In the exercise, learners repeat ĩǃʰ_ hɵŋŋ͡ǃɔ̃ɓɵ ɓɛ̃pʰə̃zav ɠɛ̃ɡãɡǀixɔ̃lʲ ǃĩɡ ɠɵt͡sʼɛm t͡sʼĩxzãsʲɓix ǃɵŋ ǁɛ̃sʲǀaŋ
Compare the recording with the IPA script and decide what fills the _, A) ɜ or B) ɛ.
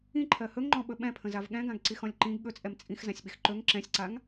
A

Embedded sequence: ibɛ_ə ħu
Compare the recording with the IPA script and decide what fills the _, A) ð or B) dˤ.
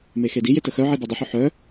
B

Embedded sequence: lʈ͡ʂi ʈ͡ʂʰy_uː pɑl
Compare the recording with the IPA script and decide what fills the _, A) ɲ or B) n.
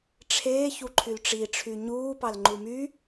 A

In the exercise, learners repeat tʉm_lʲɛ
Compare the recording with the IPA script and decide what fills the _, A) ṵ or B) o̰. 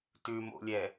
B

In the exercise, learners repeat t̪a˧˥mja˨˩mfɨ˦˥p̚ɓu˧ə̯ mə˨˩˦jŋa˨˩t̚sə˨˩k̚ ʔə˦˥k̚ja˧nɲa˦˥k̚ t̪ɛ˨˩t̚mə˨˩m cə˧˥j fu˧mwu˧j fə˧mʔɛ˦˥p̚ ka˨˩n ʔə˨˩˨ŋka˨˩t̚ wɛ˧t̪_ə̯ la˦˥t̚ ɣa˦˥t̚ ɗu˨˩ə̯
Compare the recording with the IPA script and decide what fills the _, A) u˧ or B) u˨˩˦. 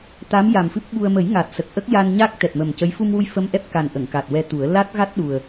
B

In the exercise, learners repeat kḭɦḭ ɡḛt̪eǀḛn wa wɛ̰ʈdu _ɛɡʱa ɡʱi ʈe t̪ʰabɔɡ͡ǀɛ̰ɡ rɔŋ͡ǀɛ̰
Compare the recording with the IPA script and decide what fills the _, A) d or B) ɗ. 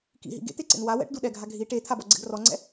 B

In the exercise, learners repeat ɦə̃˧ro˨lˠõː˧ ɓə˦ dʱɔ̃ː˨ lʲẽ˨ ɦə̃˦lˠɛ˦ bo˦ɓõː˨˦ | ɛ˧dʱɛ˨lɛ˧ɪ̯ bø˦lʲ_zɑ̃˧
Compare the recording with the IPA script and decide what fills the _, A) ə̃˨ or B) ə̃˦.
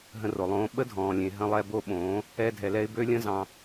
B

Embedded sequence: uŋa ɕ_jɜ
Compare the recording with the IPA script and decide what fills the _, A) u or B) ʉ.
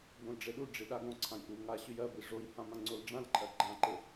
B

